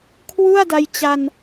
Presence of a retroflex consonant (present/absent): absent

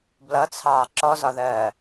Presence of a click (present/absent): present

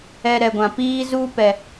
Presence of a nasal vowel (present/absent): present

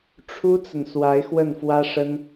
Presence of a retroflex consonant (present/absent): present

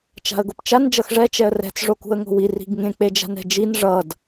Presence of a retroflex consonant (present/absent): present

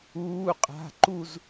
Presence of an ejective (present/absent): present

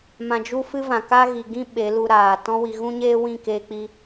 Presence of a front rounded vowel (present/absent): absent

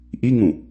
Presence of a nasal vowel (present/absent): present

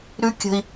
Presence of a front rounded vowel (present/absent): absent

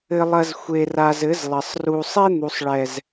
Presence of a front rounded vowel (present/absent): absent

